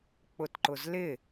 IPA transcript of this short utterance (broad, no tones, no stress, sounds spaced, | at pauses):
k͡p ʊ t ǃ ʊ z l ɪ